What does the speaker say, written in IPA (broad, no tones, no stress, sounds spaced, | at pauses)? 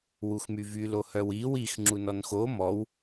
w u x m y v y l o h œ w i w i x ŋ͡ǁ u n ɔ n x o m ɔ w